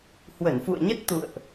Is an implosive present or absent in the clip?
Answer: absent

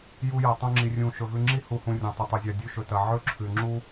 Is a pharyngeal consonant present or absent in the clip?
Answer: present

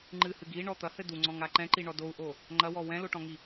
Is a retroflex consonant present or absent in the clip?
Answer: present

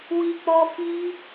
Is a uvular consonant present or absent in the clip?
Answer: absent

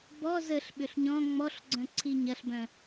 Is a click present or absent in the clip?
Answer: present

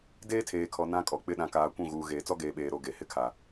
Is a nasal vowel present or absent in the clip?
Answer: present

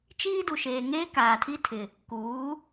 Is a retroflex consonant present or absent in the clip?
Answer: absent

